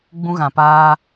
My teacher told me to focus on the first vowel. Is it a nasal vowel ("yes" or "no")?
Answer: yes